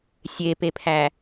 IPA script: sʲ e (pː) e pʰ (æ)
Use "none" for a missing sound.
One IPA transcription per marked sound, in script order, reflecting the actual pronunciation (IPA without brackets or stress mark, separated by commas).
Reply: p, æ